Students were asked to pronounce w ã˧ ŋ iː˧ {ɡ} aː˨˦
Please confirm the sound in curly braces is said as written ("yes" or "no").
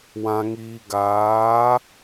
yes